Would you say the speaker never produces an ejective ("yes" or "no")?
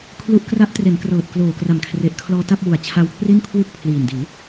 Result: yes